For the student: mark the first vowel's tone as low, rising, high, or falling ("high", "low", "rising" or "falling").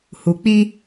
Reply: low